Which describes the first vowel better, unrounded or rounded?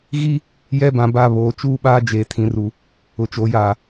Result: unrounded